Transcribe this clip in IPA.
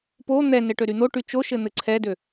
p o n̪ ɛ n ɘ ʈ ø ɾ y n̪ o ʈ y t͡ʃ o ʃ ɘ n̪ ɘ ǀʰ ɛ d ø

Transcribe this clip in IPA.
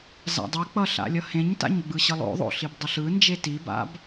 z a̰ dˤ i k͡p ʌ ɬ a̰ lʲ ʌ h ẽ ɲ t a̰ ɲ ɡ͡b ɯ ɕ ɯ lˠ o̰ ðˤ o̰ ɬ i b dˤ ʌ ɬ ɯ n d͡ʒ e t i b a̰ b

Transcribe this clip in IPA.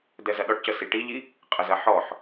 d ɛ z ɐ ɗ ɔ ʈ c ə s i ʈ i ʎ i | qʼ ə z ɐ ħ ɔ ħ

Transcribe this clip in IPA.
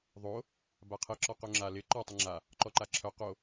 ðˤ o | b a qʰ ɪ ǁ ɔ q o ŋ͡ǁ a l ɪ ǃ ɔ tˤ ɪ ŋ͡ǁ a | ǃ ɔ ǃ a ǁʰ œ q o

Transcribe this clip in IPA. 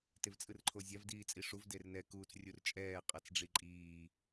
t e v t͡sʼ ɯ r ǃʰ o zʲ a v d iː t͡sʼ i ʂ u v d e r n ɛ k uː t͡s rʲ u r t͡ʃʼ ɛː qʼ a t͡s ɖ͡ʐ i ǃʼ iː

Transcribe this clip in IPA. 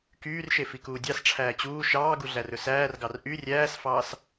k yː r ʃ e f i k uː dʲ ɑ s ʈ͡ʂʰ æː t͡ɕ uː ʃ ɑː ɡ u ɮ æ r ɵ s æː r ɡ ɑ r ʔ y rʲ æː s f ɑː s

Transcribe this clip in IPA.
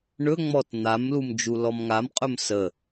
ɳ ɵ ŋ͡m ɔ t n̪ a m l u m d͡ʒ u l ɔ m ŋ a m qʼ ɵ m s ə

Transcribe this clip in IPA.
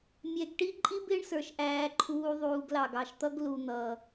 mʲ ɛ˨ ɡ ʈ i˥ ǃʼ i˥ b ɪː˦ ɳ s ə˞˩ ʃ ʔ æː˨ ǃʰ uː˨ ðˤ uː˨ ɡ l ɑ˩ ɡ ɑ˨ ʃ t̪ ʌ˦ ɡ l u˨ n̪ ʌ˩

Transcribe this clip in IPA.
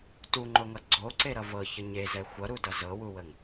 t u ŋ͡ǃ o ŋ ʌ ɡ͡ǀ o ǀ e ɾ ʌ v ɤ ç ə ɲ e z ɛ xʷ ʌ ɾ u d ʌ z ɤ w u w ə ŋ

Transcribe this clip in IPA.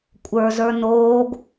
kʷʼ ə˞ z ə˞ n oː ɡ

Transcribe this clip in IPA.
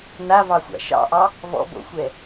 n a v ɑ xʷ a̰ ʃ ɑ̰ ʔ ɑ | v ɔ̰ b o̰ xʷ ɛ

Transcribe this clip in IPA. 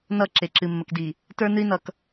n ʌ˦˨ ǁ e˨ ǁ ɨ˨ mː ə˨ k d i˨ | t ə˞˦ n ɨ˦ i̯ n ʌ˨ k

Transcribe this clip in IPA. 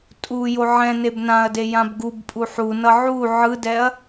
tʼ u j o ʕ ɛ̃ n e b n ã ɐ̯ d e j ã b ɡ u b pʼ u ħ u n ʌ ʕ u ʕ ɯ d ɛ ɐ̯

